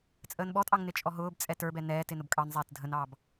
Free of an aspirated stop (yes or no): yes